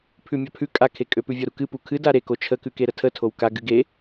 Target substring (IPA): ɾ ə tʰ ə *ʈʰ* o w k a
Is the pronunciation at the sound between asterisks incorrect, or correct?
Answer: incorrect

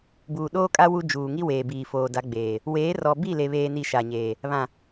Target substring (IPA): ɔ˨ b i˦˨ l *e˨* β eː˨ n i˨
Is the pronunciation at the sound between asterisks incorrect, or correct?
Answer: correct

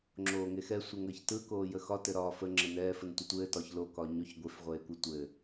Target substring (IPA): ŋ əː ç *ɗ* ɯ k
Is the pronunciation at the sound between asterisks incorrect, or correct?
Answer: incorrect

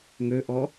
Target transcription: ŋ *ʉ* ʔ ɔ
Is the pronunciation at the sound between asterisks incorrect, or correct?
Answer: incorrect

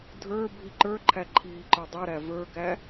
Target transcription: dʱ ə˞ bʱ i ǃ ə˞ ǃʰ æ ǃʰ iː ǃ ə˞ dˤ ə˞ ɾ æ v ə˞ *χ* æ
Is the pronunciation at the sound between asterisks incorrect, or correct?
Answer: incorrect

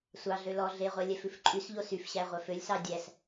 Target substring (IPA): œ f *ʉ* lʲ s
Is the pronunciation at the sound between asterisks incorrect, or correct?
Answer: incorrect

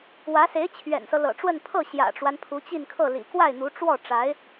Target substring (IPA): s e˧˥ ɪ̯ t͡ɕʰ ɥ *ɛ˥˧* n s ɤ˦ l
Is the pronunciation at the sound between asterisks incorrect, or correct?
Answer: incorrect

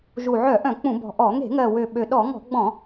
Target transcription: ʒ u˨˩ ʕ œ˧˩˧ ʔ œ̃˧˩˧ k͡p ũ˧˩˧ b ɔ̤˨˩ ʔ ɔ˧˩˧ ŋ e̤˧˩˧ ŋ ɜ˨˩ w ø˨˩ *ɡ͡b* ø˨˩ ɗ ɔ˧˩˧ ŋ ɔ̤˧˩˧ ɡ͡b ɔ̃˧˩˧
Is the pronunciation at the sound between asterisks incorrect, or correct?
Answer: incorrect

